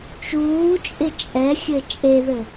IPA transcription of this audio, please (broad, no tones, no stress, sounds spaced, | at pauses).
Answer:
t͡ʃ uː t͡ʃʼ ɪ t͡ʃʼ ɛ xʲ ɘ t͡ʃʼ e ð ɘ